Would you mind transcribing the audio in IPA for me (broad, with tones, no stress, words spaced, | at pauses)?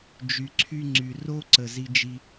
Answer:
d͡ʒy˩ǀʰy˧ ŋ͡ǀy˩ro˧ǀə˩ zi˧d͡ʒi˧